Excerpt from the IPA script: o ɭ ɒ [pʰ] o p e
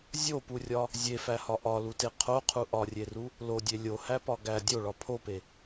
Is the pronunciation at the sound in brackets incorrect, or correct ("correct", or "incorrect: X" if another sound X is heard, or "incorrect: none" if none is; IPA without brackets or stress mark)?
correct